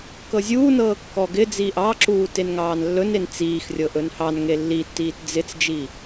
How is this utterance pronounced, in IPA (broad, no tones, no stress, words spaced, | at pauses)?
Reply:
kɤzʲuːnɤː kːɔɡɪ d͡ziːʔɑǁuː tenŋɑːnlːɵnen t͡siːxrʲɤʔ ɵnhɑnŋe lːitːiːt d͡zɪt͡sd͡ʒi